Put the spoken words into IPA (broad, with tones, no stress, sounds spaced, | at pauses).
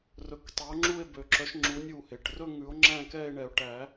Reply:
r ɵ˨˥ k tˤ e˨˥ o̯ ŋ͡ǁ u˥˧ e̯ b ø˨˩˦ ǁ œ˨˥ ʃ ŋ͡ǁ u˨˥ nʲ u˧˩ h e˩ ʈ r ɵ˥˧ ŋ ʉ˨˩˦ o̯ ŋ͡ǁ æ̃˥˧ k ɛ˥˧ e̯ ɳ ɛ˨˩˦ o̯ ʈ æ˨˩˦